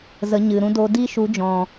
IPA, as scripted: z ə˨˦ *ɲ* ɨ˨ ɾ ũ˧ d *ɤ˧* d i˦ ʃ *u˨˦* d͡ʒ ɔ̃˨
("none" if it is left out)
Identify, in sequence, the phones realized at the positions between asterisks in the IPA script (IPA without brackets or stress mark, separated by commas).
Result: ɲ, o˧, u˨˦